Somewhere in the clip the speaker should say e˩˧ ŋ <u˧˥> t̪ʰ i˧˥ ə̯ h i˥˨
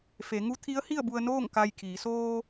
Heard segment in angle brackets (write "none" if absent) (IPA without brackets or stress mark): u˧˥